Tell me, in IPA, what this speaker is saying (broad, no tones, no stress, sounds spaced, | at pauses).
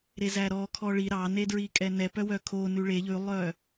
ɾ e z æ ɾ ɔ kʰ ɔ ɭ i ɾ ɑ n e d ɹ i kʼ ɛ n ɛ p œ w œ kʰ o n ʉ ɭ e ʎ ʉ lˠ œ